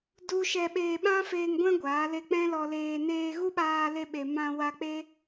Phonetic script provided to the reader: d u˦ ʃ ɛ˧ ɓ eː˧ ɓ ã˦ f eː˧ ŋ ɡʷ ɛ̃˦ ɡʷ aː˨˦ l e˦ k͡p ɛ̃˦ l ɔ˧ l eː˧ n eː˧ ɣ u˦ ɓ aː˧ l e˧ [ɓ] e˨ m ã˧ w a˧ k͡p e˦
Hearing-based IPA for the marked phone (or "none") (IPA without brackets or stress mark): ɓ